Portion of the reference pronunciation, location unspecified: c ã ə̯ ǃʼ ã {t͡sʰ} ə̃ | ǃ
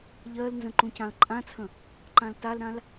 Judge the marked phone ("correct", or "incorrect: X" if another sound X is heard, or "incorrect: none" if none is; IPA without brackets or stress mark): correct